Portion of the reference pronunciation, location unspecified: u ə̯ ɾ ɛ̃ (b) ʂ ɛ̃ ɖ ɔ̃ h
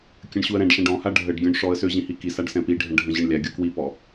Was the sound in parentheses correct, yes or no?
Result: no